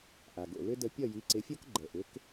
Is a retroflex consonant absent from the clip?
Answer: yes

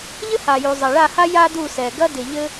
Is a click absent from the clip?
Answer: yes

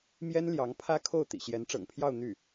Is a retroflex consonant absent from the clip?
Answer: no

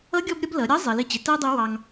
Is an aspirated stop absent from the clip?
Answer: yes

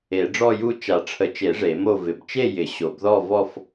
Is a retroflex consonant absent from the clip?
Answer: no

